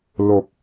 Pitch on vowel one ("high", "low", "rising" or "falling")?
low